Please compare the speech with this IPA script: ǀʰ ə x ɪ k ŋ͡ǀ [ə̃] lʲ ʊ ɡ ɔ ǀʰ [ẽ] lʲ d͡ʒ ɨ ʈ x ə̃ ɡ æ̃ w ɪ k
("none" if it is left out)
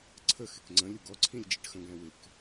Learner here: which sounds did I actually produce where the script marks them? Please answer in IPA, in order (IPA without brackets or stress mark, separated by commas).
ə̃, ĩ